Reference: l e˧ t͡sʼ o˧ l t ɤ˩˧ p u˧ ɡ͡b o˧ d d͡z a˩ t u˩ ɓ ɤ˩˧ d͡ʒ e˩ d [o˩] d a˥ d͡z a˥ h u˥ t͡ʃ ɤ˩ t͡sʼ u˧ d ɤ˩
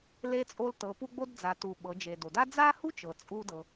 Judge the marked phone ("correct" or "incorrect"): correct